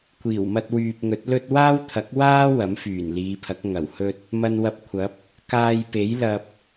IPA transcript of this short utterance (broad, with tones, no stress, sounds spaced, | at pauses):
kʷ iː˨˩ w m ɐ˧ t̚ w yː˨ p̚ ŋ ɵ˨˥ t̚ l ɵ˥ t̚ w aː˥ w t̪ʰ ɐ˨˥ k̚ w aː˥ w ɐ˨˥ m f yː˨˩ n l iː˨˧ pʰ ɐ˨˥ k̚ ŋ ɐ˨˩ w h ɵ˥ t̚ | m ɐ˧ n w ɐ˧ p̚ kʷʰ ɐ˨˥ p̚ | k aː˧ j p e˨˥ j l ɐ˧ p̚